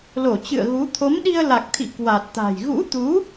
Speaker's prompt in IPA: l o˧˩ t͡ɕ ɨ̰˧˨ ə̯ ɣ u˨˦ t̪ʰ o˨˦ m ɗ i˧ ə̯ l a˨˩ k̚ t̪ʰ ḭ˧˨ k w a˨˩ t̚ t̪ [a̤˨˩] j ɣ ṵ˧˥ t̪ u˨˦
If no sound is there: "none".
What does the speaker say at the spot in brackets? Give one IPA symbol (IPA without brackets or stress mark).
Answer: a̤˨˩